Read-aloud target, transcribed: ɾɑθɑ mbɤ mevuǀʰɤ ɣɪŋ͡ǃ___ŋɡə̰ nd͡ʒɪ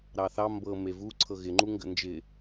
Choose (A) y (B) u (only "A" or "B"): B